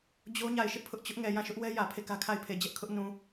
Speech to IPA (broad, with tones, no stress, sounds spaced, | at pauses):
d͡ʑ o˦ ɲ a˦˨ ɪ̯ ʃ ɪ˦ ʔ pʰ ʊ˦ ʔ t͡ɕ ʊ˦ ʔ ŋ ɛ˨ j ã˦˨ ʃ ʊ˦ ʔ w ɛ˦ j ä˨ pʰ e˦˨ k ä˦ kʰ a˦˨ ɪ̯ pʰ e˨ d͡ʑ ɛ˦ ʔ kʰ ʊ˦ ʔ n ũ˨